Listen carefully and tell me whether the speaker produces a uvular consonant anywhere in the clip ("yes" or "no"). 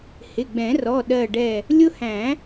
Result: no